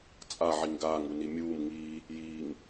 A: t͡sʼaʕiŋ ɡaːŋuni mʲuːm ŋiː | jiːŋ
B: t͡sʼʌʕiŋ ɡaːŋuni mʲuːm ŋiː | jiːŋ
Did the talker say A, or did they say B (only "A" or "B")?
A